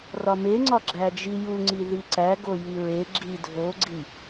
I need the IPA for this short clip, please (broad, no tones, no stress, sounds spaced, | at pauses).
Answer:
r ɒ m e ŋ͡ǀ ɒ ɡ͡ǁ æ d͡ʒ i j u ŋ͡ǀ i ð i ǀ æ ɡ o j i ɹ e ɡ͡ǁ i dʱ o ɡ͡ǀ i